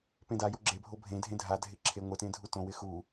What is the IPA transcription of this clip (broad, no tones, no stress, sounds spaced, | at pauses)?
p ẽ d a j o ɡ͡ǁ e bʱ o bʱ ẽ dʱ ẽ dʱ a dʱ ɪ ǁʰ e ŋʷ ɪ t ẽ dʱ u t õ w ɪ x u